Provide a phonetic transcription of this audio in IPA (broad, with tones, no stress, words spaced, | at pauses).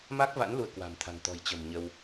ma˦˥k̚va̰˧˥n lu˧ə̯kwa̤˨˩mt̪ʰa̤˨˩ŋ t̪ɔ̤˨˩jt͡ɕə̤˨˩m ɲə˧w